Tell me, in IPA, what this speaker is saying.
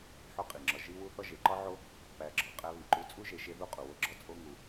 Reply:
ħo˦qʼi˩ŋ͡ǁɒ˨ ʒi˦wu˦ θɒ˦ʒe˩ǃɒ˥ʕo˦ | pæ˨ɡ͡ǁɒ˩ qʼæ˦βi˩ǃu˦ t͡sʼu˥ʒe˨ʃe˦ðu˦ qʼu˩wo˦ɡ͡ǁɒ˥ t͡sʼo˦ ŋu˨

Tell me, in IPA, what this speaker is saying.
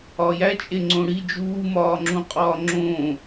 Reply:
ɒjæt͡ʃʼe ŋ͡ǀõɽi d͡ʒuːmɒːŋ͡ǁũqʼɒː ŋ͡ǁõː

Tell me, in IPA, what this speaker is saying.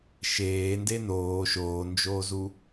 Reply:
ʃeː ndenoː ʃoːnd͡ʒoːzu

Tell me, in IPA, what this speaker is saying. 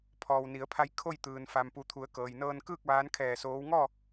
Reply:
pʰɔː˩wni˩˧ə̯pʰa˧j kʰo˥˨jt̪ɯː˩n fa˩mpu˩˧t̪ʰu˩˧ə̯ kɤː˩jnɤː˧nkɯː˥˨k̚ ʋaː˧˥nkʰɛː˧˩soː˧˥w ŋɔː˥˨

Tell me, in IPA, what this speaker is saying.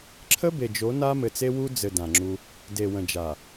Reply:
ǁʰə˦be˨d͡ʒo˨˦ na˦mɘ˨t͡se˦ wu˦d͡zɘ˨ dã˨ŋ͡ǁu˦ | de˨wə̃˨d͡ʒa˨

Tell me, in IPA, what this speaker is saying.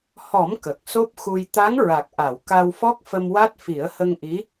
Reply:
hɔ˨˩˦m kə˨˩k̚so˦˥p̚xu˧j t̪a˧˥ŋɹa˨˩k̚ʔa˨˩˨w ka˧wfɔ˦˥k̚ fə˧mwa˦˥t̚ fi˨˩˦ə̯hə˧ŋʔi˧˥

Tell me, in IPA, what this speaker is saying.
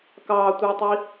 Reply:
kɑtʷə˞tˤi

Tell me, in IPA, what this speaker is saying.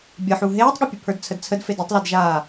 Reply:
bʲəħu ɦeːtˤɠɛpʲɘpʰə˞d t͡sʰədt͡sʰədfed ɘtˤledʒaː

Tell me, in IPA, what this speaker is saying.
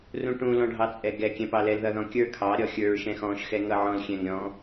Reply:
rũʈũ lɔ̃ɖʱɑt͡sʼɛɡɛ kʲɛ̃pɑlɛl ðʌðɔ̃kʲə˞ kʰɑ ɾʲɔxʲə˞ɹ ʃɛ̃xɔ̃ʃ xɛŋʌʕɔ̃l xʲɛ̃ŋɾʲɔ̃

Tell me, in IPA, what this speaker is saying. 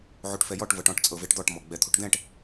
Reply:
ʕuʈfɛjɔʈ vɤʈɔ̃ʈ t͡sʼɤveʈd̪ɔʈ mɔɡ͡bɛt̪ʰuʈd̪ɛ̃ʈ

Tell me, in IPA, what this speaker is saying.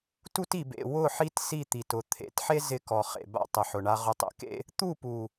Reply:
tu˦ti˨bḛ˨ wʊ˦˨ħi˦t si˦˨t̪i˨tʊ˨˦ t̪ʰḛ˨˦tħe˦ zɪ˦kɔ˨ χḛ˨ba̰˦ tˤɪ˨ħʊ˨ɳa˦ ʁʊ˨tˤḛ˨kḛ˦ | t̪u˦˨pu˨

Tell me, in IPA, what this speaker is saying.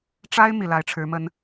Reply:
ʈ͡ʂa˥ɪ̯ mi˨˩la˧˥ɪ̯ʈ͡ʂʰɻ̩˧˥ mə˥n

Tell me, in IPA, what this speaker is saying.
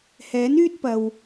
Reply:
hɛː˨˥n yː˥t̚pɐ˨w

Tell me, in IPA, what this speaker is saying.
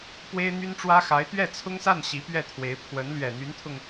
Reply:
pwe˥ɪ̯n̪y˥nʈ͡ʂwä˥ xa˧˥ɪ̯t̪ɥɛ˥˩t͡sʰʊ˥ŋsa˥˩n ɕi˧˥pɥɛ˥˩t̪ʰwe˧˥ɪ̯ pʰwə˧˥n lɥɛ˨˩n̪y˧˥nt̪ʰʊ˧ŋ

